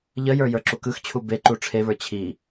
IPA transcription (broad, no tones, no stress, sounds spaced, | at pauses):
ʎ ə j ə˞ j ə˞ ǁ u k ɯ x t͡ɕʰ u b e ǃ u ʈ͡ʂʰ e β ə˞ t͡ɕʰ i